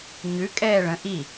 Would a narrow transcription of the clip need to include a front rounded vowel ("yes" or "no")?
no